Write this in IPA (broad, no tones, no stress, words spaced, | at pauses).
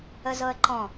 əzɤə̯ǃɔ̃